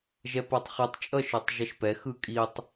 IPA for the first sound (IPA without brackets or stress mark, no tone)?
ʒ